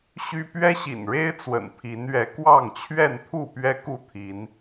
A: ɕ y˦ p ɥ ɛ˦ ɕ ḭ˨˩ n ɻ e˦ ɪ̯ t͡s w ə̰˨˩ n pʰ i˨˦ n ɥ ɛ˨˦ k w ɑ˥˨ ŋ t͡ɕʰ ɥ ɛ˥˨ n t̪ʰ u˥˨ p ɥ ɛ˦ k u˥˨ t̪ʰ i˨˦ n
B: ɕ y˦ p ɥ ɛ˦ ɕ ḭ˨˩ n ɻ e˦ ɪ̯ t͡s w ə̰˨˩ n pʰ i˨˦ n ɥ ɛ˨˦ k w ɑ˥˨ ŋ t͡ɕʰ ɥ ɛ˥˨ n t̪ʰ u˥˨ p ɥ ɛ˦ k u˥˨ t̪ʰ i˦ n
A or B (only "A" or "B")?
A